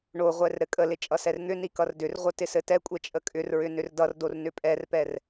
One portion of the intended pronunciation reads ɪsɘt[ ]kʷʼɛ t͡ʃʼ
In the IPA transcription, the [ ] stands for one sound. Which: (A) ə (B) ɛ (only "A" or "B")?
B